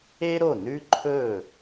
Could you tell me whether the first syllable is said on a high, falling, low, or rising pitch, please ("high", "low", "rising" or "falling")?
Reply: high